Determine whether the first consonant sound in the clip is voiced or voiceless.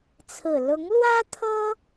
voiceless